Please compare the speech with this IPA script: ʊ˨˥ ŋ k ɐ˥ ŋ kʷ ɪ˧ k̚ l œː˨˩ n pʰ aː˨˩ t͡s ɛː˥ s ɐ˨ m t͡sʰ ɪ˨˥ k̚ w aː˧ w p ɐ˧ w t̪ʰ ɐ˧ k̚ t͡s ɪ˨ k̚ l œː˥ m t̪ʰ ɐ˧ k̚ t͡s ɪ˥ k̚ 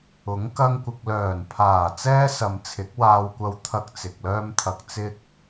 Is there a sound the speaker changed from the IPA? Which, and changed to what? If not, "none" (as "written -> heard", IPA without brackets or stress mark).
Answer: p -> kʷ